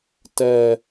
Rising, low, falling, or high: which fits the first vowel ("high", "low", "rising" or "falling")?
low